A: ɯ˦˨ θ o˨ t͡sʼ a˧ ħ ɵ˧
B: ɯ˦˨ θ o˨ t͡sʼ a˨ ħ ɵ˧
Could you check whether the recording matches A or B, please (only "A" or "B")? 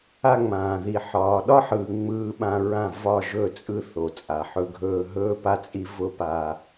B